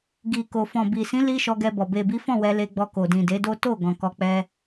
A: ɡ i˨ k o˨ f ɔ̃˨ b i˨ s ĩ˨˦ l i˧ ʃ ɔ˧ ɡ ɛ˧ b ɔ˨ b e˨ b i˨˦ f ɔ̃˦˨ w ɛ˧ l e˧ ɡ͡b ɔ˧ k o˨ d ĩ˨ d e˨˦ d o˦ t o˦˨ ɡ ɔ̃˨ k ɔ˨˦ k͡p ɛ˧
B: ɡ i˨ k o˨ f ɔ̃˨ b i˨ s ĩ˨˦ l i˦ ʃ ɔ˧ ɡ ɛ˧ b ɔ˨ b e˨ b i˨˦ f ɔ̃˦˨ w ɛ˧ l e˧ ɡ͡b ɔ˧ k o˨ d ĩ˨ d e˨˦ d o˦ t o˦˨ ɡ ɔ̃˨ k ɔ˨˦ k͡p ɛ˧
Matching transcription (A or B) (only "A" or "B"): B